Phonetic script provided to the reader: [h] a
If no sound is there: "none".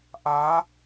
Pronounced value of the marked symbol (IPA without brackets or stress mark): ʔ